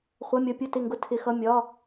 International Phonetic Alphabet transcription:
χʷ ʌ˧˥˧ mʲ ʌ˧˥˧ pʲ ʊ˥˨ t ɪ˥˨ ŋ ɡ ʊ˦˥ tʰ ɪ˦˥ x ʌ˧˥˧ mʲ ɒ˧˥˧

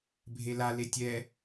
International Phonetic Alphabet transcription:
bʱ e l a l e tʲ ɛ

